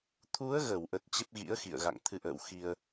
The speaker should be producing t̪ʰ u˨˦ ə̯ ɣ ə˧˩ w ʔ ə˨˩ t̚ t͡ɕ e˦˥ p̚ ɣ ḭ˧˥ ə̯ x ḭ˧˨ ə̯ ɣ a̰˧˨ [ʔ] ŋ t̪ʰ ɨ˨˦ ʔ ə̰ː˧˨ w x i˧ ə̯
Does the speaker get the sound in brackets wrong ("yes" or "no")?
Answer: yes